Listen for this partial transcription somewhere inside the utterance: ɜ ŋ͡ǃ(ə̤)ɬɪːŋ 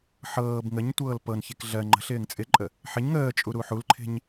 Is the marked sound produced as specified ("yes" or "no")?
yes